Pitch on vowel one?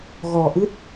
low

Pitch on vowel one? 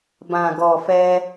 low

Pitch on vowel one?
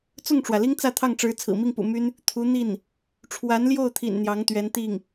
falling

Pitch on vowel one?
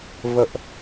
high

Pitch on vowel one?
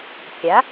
rising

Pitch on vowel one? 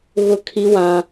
high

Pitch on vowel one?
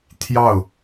falling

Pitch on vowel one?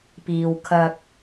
low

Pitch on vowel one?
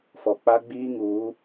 low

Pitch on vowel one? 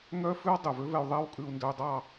high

